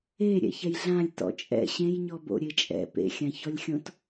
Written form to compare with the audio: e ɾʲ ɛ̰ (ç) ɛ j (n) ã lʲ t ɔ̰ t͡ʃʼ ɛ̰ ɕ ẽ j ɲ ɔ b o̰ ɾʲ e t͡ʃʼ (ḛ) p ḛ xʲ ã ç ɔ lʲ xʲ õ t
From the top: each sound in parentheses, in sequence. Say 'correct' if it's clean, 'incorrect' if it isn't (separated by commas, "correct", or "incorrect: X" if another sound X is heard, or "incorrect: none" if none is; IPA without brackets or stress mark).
correct, incorrect: ɮ, incorrect: ɛ̰